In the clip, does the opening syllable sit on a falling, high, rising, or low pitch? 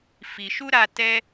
low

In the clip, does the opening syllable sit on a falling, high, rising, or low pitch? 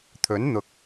rising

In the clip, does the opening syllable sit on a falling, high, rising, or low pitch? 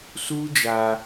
high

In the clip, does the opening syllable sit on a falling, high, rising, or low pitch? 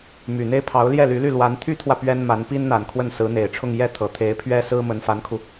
low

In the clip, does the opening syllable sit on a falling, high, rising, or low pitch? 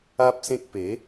high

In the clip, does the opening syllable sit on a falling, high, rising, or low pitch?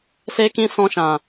high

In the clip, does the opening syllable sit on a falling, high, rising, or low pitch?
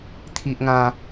high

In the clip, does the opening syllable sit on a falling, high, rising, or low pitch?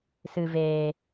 low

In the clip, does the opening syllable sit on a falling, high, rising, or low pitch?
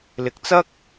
low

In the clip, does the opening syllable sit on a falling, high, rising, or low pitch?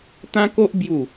high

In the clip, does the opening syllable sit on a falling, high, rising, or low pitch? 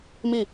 falling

